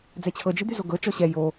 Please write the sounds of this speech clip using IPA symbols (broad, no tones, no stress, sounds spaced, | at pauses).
d͡z ɛ t͡ɕʰ ɤ d͡ʒ i d̪ y z o ɡ ɤ t͡ʃ ɔ ɕ ɛ j o